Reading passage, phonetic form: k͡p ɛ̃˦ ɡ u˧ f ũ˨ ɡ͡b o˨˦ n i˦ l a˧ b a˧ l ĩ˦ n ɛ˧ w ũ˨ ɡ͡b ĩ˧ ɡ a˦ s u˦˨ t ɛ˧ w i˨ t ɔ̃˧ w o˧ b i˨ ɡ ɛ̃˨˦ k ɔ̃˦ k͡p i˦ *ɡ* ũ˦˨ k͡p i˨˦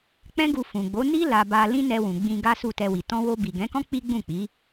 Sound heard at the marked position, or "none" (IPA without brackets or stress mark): ɡ͡b